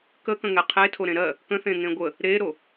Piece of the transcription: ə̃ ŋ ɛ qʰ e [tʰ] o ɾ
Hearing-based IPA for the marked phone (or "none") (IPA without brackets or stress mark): tʰ